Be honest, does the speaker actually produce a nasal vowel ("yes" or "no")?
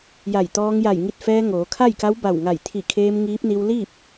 no